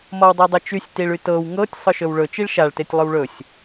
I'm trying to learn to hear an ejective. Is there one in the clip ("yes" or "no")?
no